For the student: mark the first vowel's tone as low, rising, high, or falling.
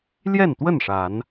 falling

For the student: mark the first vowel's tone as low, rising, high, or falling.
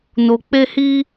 low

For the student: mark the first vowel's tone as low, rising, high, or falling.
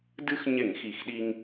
high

